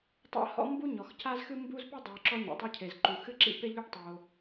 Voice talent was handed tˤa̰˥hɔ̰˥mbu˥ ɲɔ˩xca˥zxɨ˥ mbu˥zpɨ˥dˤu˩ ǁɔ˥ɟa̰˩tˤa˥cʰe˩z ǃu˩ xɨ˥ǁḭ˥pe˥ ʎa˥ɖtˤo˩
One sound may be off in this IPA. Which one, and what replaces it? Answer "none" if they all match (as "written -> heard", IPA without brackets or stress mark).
ɟ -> ɲ